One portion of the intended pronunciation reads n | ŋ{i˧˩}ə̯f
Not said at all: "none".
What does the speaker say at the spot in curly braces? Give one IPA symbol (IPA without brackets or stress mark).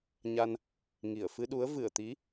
i˧˩